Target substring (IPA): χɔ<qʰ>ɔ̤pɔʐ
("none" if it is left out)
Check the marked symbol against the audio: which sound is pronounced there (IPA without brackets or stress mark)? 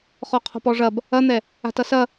qʰ